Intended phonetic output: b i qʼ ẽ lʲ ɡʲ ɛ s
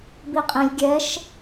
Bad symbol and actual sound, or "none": s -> ʃ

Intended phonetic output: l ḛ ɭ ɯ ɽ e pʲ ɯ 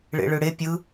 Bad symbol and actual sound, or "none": l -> ɭ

